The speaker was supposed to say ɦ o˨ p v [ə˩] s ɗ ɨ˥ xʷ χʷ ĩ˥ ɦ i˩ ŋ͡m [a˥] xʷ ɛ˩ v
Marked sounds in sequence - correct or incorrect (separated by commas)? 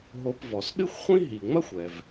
incorrect, incorrect